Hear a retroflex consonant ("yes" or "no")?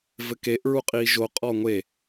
no